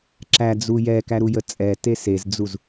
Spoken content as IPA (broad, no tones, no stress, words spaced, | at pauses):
ǁæd͡zu jɛkæɾujə t͡sʼɛte sezd͡zuz